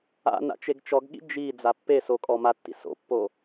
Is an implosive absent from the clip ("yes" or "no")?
no